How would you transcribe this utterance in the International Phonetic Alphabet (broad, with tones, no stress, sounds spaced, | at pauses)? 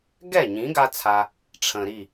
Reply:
ɡ ɛ˦˨ ɲ ĩ˨˦ ɡ a˦ t͡sʰ a˧ | ʈ͡ʂʰ ə̃˨ ɾ i˦˨